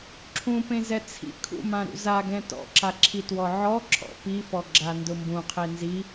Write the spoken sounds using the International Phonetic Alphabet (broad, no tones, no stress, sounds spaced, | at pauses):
ǁʰ ũ p ẽ z ɛ t͡sʰ ḭ kʰ ṵ m ã ɾ ṵ z a ɡ ɛ̃ t ɔ̰ ǁ a ǁʰ i t w ɔ ʕ ɔ ǁʰ ɔ̰ p i f ɔ ɡ͡ǁ a n d ʊ m b ũ qʰ e n z i